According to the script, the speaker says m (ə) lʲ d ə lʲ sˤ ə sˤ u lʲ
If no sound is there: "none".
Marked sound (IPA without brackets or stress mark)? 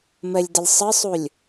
ə